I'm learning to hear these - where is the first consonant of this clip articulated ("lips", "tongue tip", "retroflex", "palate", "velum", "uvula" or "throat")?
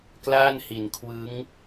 velum